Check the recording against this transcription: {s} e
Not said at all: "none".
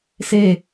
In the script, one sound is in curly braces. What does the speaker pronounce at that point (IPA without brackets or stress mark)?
s